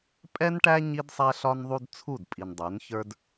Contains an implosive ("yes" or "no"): no